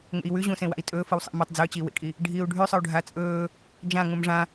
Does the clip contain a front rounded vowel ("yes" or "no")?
no